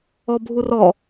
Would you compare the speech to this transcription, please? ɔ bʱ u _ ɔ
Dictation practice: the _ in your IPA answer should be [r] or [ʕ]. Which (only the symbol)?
r